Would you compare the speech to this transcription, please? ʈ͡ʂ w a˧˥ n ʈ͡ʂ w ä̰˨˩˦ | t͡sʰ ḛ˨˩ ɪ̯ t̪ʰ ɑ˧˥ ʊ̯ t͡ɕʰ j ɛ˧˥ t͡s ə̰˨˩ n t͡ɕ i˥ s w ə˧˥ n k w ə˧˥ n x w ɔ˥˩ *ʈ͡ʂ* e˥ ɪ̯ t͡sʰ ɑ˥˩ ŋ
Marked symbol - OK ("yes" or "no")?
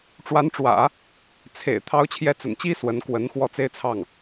no